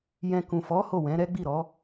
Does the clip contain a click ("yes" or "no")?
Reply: no